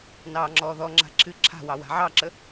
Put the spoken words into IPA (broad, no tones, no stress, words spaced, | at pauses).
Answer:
nɑːŋ͡ǁɔːðɔŋ͡ǁa̤ ǁʰɨ ǁʰa̤wɑ wa̤ʕɑǁə